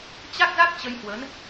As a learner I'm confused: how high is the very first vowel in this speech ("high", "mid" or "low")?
low